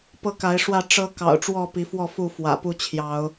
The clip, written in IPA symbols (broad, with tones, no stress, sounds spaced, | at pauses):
p ɤ˦ k a˨˦ ɪ̯ ʂ w ä˥˨ ʈ͡ʂ ɤ˦ k ɑ̰˨˩ ʊ̯ ʈ͡ʂ w ɔ˥˨ p i˨˦ f w ɔ˥˨ f u˥˨ f w ä̰˨˩ p u˥˨ t͡ɕʰ j ɑ˨˦ ʊ̯